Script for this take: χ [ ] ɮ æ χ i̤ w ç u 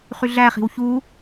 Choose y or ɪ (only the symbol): y